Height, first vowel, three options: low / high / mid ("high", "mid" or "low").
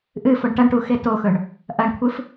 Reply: high